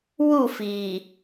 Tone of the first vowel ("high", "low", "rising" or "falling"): falling